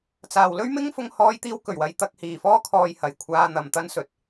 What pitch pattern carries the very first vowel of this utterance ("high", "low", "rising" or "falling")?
low